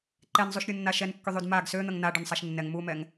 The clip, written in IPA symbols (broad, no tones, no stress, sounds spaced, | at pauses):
ǃ ɛ n zˤ u ʃ ɾʲ u nː a ʃ ɛ n kː y ðˤ y d m a ɡ s ø n̪ ə ŋ n a ɖ ø n sˤ a ʃ nː ɛ ŋ m u m ɛ ŋ